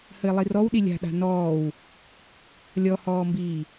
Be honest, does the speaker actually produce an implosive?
yes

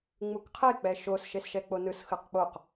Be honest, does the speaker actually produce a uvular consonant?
yes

